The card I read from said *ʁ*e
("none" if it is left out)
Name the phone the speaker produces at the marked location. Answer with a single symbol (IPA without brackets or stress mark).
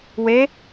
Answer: w